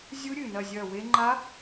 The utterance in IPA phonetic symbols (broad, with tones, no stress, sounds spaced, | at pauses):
zʲ u˦˥ ɾʲ ɨ˨˩ n ɐ˦˨ zʲ ɐ˦˨ w e˦˥ ŋ͡ǃ a˦˥